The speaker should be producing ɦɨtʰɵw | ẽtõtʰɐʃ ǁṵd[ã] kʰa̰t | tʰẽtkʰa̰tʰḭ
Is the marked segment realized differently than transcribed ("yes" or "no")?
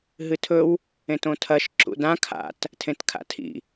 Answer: no